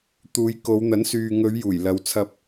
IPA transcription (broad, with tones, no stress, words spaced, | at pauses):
t̪uː˨˧jko˨˧wn̪ɐ˨˥nsyː˨ ŋɵ˨˧ɥ juː˨˩jlɐ˨˧wt͡sʰɐ˧p̚